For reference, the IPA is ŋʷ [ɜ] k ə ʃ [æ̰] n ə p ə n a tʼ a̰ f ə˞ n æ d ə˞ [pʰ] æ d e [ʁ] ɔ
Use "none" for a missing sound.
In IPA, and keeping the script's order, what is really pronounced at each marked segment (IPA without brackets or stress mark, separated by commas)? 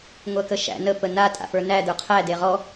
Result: ɜ, æ̰, qʰ, ʁ